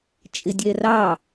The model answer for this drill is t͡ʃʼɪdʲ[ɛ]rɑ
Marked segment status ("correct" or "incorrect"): correct